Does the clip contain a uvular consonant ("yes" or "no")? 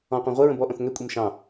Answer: yes